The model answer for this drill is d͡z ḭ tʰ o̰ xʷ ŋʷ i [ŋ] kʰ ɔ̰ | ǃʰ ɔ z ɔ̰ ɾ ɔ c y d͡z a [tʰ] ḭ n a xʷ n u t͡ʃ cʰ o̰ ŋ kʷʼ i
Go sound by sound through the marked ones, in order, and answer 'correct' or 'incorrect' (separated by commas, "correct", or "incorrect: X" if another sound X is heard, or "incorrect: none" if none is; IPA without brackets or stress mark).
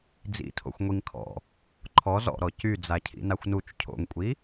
correct, incorrect: cʰ